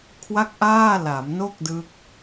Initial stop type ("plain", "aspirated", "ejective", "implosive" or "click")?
aspirated